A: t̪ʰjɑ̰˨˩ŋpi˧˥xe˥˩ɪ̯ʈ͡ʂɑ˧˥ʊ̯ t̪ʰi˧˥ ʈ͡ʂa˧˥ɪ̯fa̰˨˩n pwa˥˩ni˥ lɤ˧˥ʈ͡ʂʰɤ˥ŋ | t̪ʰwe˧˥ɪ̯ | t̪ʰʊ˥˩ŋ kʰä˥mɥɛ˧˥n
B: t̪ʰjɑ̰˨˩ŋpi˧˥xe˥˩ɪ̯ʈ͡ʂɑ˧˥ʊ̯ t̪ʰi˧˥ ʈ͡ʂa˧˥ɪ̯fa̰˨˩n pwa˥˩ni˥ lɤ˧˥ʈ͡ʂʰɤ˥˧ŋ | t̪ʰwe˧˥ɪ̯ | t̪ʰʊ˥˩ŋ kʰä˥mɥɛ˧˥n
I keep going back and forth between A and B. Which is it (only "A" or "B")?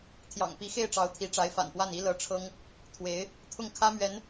A